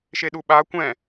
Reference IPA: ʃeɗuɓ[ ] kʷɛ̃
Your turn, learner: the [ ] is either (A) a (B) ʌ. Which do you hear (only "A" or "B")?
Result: A